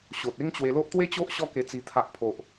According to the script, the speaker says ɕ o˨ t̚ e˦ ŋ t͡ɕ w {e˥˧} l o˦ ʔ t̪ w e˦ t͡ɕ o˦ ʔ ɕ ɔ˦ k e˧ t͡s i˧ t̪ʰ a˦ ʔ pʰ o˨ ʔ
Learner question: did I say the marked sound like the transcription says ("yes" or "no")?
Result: no